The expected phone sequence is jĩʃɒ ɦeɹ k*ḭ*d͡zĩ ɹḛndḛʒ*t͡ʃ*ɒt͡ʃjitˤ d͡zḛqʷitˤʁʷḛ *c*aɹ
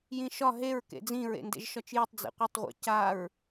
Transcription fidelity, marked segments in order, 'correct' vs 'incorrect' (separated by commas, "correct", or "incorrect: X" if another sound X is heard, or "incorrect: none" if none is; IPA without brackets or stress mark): incorrect: ḛ, incorrect: ʃ, correct